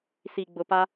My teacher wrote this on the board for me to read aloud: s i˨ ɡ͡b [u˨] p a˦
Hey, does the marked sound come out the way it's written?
no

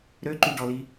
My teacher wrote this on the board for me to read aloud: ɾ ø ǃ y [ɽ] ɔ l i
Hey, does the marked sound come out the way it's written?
no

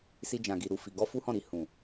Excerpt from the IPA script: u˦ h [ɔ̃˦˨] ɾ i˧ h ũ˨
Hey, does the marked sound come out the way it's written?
yes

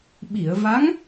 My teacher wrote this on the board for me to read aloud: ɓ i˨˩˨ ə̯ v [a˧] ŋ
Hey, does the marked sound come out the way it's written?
no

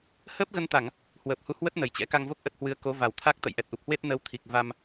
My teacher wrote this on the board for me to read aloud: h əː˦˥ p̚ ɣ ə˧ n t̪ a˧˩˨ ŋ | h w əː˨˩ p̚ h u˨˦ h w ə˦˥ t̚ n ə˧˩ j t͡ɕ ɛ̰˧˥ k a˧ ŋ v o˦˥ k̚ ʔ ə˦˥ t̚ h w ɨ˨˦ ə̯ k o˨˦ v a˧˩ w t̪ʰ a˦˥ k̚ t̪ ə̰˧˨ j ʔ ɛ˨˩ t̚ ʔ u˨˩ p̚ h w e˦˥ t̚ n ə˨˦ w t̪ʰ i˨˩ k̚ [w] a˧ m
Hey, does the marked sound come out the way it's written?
no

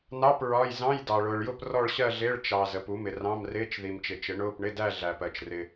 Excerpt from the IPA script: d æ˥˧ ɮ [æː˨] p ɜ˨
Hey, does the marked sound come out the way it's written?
no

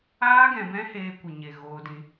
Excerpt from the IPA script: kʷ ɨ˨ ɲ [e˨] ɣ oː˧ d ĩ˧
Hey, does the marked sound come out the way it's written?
yes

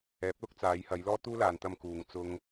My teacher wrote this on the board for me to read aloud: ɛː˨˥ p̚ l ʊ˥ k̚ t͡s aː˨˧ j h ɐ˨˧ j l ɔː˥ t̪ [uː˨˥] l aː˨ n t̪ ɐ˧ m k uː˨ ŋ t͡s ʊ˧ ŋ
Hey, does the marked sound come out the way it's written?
no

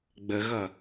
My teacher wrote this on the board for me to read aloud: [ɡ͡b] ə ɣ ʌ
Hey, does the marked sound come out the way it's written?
yes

